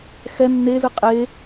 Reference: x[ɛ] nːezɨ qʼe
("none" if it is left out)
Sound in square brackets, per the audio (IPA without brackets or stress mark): ɛ